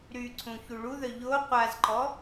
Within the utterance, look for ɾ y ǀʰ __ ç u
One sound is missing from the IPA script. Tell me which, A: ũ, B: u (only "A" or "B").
A